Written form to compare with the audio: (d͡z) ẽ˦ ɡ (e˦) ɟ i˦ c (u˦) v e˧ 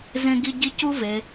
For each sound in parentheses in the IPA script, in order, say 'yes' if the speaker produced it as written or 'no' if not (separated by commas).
no, no, yes